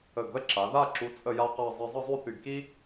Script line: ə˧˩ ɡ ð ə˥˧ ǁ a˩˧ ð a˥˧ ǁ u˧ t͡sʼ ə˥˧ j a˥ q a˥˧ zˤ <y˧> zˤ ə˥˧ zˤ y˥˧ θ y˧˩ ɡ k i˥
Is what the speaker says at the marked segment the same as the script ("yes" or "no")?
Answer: no